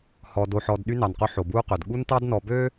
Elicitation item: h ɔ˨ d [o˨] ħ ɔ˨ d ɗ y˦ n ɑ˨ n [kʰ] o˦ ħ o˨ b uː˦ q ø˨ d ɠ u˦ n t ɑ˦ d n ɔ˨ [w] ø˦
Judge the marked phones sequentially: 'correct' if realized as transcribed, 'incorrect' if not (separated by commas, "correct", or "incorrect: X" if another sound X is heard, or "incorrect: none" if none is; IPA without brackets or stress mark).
correct, incorrect: q, incorrect: b